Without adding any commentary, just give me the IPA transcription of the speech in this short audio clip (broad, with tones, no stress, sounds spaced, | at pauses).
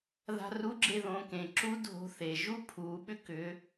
ð a̤˧ r u˧˥ ɡ͡ǁ e˧ ð õː˩˧ k ẽ˩ ǁ u˧˥ dʱ o̤˧˥ θ e˩ ʒ u˥ pʰ uː˩˧ ɓ ʏ˥ k ʏ˩˧